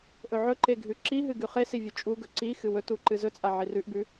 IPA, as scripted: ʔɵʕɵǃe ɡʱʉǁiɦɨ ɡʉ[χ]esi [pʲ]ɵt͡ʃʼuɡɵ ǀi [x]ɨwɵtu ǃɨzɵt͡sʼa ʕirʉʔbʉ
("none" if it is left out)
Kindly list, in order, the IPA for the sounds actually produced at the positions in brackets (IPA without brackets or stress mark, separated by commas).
χ, vʲ, x